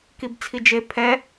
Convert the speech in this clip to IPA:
k i b t͡sʰ i d͡ʒ e pʰ ɛ

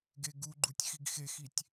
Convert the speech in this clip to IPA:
ɡ e ɡ u ɡ͡ǃ u tʲ x i ɡ x e x i tʲ

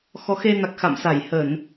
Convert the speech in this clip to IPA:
x ɔ˨˦ x e˧ n a˨˩ k̚ x a̰˧˨ m s a˧˩ j h ə˧˩˨ n

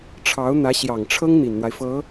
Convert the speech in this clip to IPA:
ʈ͡ʂʰ ɑ˧˥ ʊ̯ n̪ ä˧˥ ɕ j ɑ˨˩ ŋ ʈ͡ʂʰ ɤ˥ ŋ n̪ i˨˩ n n̪ w a˦ ɪ̯ f ɤ˧˥

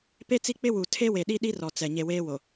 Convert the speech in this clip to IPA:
p e˦ t͡s i˦ k͡p ɪ˦ w u˨ tʰ e˦ w e˨ ɗ i˦ ɗ i˦ r ɔ˨ t͡s ɛ˨ ɲ e˨ w eː˦ w o˨

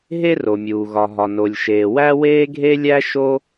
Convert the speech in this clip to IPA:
ɦ e˥ r o˩ mʲ uː˩ ɣ ɒ˩ ɦ ɒ˩ n o˩ lʲ ʃ eː˩ w æ˥ w eː˥ ɡʱ e˥ lʲ æ˥ ʃ o˥

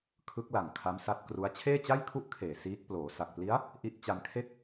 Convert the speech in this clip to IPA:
kʰ ɯ˦˥ k̚ l a˨˩ ŋ kʰ a˦˥ m s a˦˥ t̚ k r u˦˥ a̯ t͡ɕʰ eː˥˩ t͡ɕ a˥˩ j kʰ u˥˩ ʔ kʰ eː˨˩ s iː˦˥ k̚ p l oː˩˦ s a˨˩ k̚ p l i˦˥ a̯ | ʔ i˦˥ ʔ t͡ɕ a˧ n kʰ e˥˩ k̚

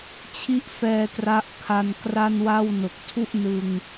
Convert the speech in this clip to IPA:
t͡ɕʰ i˦˥ ʔ f ɛː˧ t r a˦˥ ʔ kʰ a˧ n k r a˥˩ n w a˥˩ w n o˨˩ k̚ tʰ u˥˩ ʔ n ɯ˧ ŋ

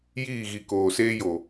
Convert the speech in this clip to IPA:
j iː˦˨ ɣ i˨ k oː˨ s eː˦ j o˨

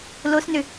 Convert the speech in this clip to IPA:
l o s n ʏ

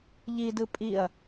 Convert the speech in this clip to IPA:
ʎ i d ɯ pʼ i ɐ̯

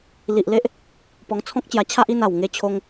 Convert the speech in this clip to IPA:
l i˨ ʔ l e˦ ʔ | p ɔ˧ ŋ t͡sʰ ɔ̃˦ k̚ t͡ɕ j a˧ t͡ɕʰ a˦ ʔ i˥˧ n a˨˩ w ŋ e˧ t͡ɕʰ o˧ ŋ

